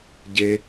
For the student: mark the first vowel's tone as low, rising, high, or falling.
high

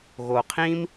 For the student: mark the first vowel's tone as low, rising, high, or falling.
low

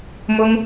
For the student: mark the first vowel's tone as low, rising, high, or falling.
high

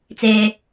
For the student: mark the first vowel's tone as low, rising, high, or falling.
high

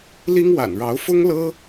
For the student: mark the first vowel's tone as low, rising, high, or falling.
high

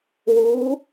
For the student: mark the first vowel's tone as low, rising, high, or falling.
rising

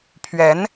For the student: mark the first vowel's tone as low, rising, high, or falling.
rising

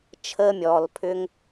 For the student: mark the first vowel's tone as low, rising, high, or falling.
high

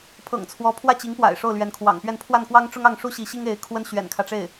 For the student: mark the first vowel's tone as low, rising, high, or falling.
low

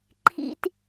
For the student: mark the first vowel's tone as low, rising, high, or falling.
low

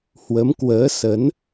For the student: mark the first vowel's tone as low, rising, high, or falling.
rising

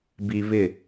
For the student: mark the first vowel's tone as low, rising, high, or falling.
low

